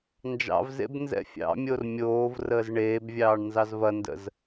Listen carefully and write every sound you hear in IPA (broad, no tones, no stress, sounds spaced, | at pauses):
n d͡ʒ ɑ̰ v z ḛ b n z ɛ̰ fʲ ɑ̰ mʲ o r mʲ oː v r əː z ɳ eː b vʲ ɑː ɳ n z ɑ z v ɐ n d ə̰ z